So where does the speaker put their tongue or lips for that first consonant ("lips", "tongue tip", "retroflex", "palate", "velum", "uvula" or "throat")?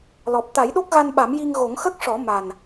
tongue tip